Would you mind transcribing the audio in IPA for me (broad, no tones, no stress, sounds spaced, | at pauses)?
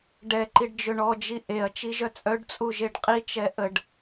ɖ ɛ ǃ i ɖ d͡ʒ ø ɳ ɔ d͡ʒ i ʔ e ɐ̯ t͡ʃ i ʒ œ t͡sʼ œ ɖ t͡sʼ u ʒ e ɖ qʼ i t͡ʃ ɛ ʔ ə ɖ